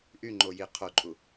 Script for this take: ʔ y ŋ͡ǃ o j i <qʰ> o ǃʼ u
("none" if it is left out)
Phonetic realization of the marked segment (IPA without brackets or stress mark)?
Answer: qʰ